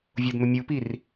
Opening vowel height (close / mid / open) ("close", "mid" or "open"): close